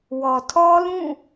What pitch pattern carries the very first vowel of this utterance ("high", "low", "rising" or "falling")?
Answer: low